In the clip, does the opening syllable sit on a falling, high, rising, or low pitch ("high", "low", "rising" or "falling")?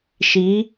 rising